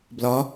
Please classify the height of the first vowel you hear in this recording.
low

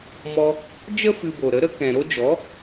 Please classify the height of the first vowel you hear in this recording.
mid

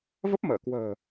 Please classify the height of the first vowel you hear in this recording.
mid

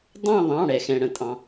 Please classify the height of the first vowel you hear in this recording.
low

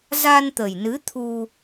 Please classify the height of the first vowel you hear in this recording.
low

